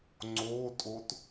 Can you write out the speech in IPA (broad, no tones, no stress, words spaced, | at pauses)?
ŋ͡ǀotʼot